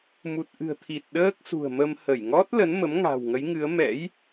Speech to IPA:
m u˨˩ t̚ ʔ ɨ̤˨˩ ə̯ t̪ʰ i˨˩ t̚ ɗ əː˦˥ k̚ s ṳ˨˩ ə̯ m ə˧ m h ə˧˩ j ŋ ɔ˦˥ t̚ l ə˨˦ n m ə˨˦ m ŋ a̤˨˩ w ŋ ə˨˦ j ŋ ɨ˨˦ ə̯ m ɛ̰˧˥ j

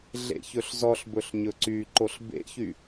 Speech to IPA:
ɮ ḛ ç ɵ ɬ z ɔ ɬ b ɵ ɬ ɲ ɵ ǀ y ǃ o ɬ b ḛ ç y

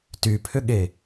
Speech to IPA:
t y pʰ ʏ ɠ e

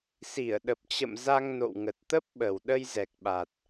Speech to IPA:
s i˧˩ ə̯ ɗ ə˨˩ p̚ t͡ɕ ə̰˧˨ m z a˧ ŋ n o̰˧˨ w ŋ ə˨˩ t̚ t̪ ə˦˥ p̚ ɓ ə˨˩ w ɗ ə˧ j z ɛ˨˩ k̚ ɓ a˨˩ t̚

